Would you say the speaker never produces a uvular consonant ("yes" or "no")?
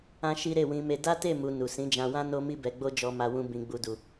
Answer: yes